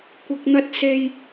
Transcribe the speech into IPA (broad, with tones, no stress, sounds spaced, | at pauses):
kʷ ɐ˧ k̚ n̪ ɐ˧ t̚ s e˧ j